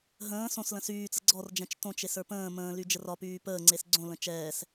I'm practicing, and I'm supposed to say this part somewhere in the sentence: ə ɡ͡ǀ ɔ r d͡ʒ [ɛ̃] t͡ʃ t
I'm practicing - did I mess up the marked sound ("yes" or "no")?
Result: no